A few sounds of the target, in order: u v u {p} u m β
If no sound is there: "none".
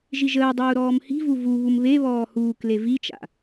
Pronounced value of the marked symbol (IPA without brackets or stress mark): β